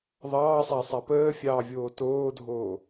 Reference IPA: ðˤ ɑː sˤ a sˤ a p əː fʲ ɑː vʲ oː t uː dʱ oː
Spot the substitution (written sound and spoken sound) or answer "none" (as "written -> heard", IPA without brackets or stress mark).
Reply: uː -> oː